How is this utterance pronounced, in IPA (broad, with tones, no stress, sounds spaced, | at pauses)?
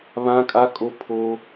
β ã˦ kʼ a˦ kʼ o˦ pʰ o˦